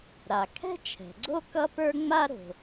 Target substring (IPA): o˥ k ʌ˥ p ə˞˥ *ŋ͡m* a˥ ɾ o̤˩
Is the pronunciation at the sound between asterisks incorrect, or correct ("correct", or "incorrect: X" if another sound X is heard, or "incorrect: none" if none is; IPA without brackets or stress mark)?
correct